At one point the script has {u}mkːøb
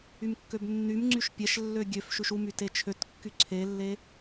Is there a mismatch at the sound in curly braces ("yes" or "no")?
yes